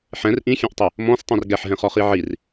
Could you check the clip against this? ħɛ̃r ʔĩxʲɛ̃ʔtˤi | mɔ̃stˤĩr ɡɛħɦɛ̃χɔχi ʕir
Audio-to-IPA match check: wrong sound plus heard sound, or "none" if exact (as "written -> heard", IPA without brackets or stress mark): none